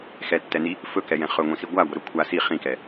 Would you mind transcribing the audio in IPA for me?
x ɛ tː ɛ n i | f ɵ k ɛ j ɛ̃ χ ɵ ŋʷ ĩ s i ɡʷ a ɡʷ ə ɾ ɵ kʷʰ a s i χ ĩ k ɛ

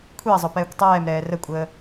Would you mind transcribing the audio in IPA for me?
kʷʰ i ɐ̯ zˤ ʊ p ɛː kʷ tˤ ɛː m ɾ ɛː r ə kʷʼ əː

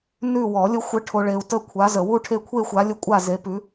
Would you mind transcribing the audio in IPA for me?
n ʉ˦˨ w ɔ˨˩˦ lʲ ə˨˦ xʷ ə˨˦ ʈʰ o˨ ɭ e˨ u̯ t ə˦˨ kʷʰ a˨˦ z ə˨ w u˦˨ ʈʰ e˦˨ kʷʰ e˦˨ xʷ a˨˦ lʲ ə˦˨ kʷʼ a˦˨ z e˨˦ p ʉ˨˦

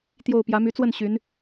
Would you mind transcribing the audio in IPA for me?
t̪ j o˥˩ ʊ̯ p j ä˧˥ m y˧˥ t͡s w ə˥˩ n ɕ y˧˥ n

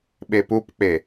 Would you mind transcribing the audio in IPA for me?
ɓ e p u p k͡p e

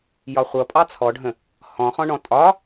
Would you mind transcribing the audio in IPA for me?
j ɒ χʷ ʌ pʼ ɑ t͡sʰ ɔ ɖʱ ə̃ | h ɔ̃ χ ɔ̃ ɳ ɔ̃ tʼ ɒ

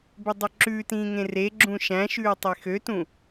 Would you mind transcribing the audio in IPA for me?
b ø dˤ ɵ ǁ ʉ t ĩː ŋ ẽ r e ɡ͡ǁ ũ ʃ æ̃ ʃ ʉː tˤ e x ø t ũ

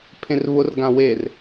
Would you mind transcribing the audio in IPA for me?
pʰ ẽ r β ʊ r ɡ ã w e r

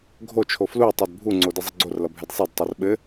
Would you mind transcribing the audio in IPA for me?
ɡʱ o t͡ʃʰ o f l u tˤ ɛ d bʱ u ŋ͡ǀ o d ɘ zˤ ɘ ɡ͡ǀ o r l ʌ bʱ ɛ d sˤ ɛ d tˤ o r ɓ ɘ

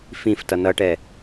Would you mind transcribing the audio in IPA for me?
f ĩ f t ʌ n ʌ ʈ ɛ

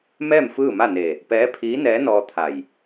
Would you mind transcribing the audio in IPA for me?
m ɛː˥˨ m f ɯː˥˨ m a˥˨ n e˧˩ | p ɛː˧˥ pʰ iː˧˥ n ɛː˧˥ n ɔː˧ t̪ʰ a˧˩ j

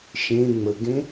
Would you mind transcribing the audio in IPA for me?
ʃ ẽ ŋ͡m ə ɡ ẽ

